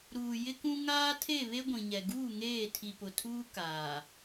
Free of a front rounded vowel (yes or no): yes